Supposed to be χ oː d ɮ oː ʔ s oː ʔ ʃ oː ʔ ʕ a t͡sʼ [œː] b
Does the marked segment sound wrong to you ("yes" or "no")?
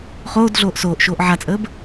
yes